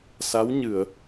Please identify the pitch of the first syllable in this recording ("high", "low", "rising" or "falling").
rising